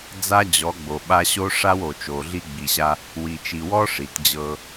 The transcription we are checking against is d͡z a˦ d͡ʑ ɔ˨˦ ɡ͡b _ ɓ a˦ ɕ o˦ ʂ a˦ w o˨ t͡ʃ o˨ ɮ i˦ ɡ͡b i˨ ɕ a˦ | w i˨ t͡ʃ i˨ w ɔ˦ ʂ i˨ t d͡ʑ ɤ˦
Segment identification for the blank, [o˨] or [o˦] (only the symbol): o˨